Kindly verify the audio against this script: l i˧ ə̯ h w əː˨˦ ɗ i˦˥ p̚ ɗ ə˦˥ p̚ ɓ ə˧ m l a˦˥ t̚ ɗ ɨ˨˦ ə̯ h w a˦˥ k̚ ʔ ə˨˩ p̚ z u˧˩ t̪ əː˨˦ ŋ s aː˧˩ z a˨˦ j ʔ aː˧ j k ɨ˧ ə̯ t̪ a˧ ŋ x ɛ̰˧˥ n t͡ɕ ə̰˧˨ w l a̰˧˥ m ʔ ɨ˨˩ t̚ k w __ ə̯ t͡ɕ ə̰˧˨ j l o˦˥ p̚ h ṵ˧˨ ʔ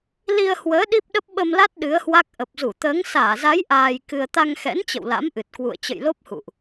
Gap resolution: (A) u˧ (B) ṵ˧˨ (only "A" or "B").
B